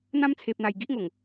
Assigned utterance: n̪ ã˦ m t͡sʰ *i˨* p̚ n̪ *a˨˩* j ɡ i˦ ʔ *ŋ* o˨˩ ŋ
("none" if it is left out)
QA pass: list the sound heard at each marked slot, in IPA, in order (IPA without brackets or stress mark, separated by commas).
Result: e˨, a˨˩, ŋ